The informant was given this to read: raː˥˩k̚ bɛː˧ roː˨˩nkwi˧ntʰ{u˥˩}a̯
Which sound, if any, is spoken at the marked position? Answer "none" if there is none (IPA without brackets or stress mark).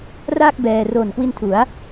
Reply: u˩˦